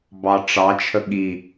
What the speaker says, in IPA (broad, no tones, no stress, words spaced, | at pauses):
bɑʈ͡ʂɑt͡ʃʰə ɠi